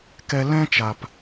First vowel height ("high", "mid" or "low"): mid